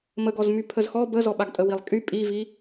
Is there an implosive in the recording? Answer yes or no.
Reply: yes